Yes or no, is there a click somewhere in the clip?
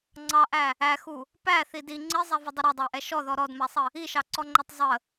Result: yes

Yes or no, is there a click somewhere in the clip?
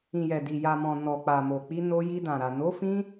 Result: no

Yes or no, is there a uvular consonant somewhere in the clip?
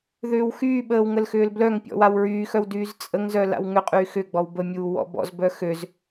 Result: yes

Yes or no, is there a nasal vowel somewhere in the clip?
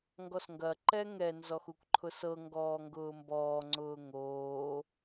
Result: no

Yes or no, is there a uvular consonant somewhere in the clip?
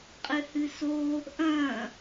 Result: yes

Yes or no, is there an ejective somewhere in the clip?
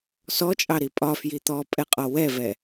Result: yes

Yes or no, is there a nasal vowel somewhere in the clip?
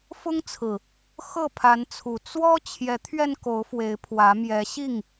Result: no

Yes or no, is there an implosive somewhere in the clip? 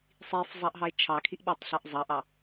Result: yes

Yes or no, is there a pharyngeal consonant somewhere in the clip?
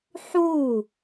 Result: yes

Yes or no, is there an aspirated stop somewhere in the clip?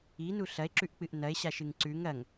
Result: no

